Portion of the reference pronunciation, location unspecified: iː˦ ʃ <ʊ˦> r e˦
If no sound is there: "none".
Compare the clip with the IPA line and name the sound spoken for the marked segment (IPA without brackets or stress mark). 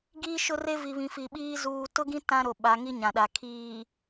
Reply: ʊ˦